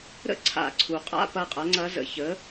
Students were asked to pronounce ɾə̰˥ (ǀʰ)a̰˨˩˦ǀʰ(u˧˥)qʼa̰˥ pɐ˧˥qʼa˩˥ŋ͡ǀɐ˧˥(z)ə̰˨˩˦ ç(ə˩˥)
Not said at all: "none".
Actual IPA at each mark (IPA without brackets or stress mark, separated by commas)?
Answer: ǀʰ, u˩, z, ə˩˥